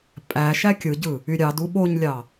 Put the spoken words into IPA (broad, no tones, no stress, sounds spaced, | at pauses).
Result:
pʼ æ ʃ æ kʲ ɯ ɟ ɯ | y ɾʲ ɑ d u ɓ o ɲ lʲ ɑ